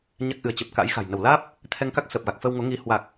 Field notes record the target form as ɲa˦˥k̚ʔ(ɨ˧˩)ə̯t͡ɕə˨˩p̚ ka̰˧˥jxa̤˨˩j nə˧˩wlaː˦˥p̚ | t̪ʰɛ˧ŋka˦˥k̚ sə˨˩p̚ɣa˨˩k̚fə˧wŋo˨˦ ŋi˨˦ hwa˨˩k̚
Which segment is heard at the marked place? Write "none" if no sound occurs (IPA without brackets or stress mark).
ɨ˧˩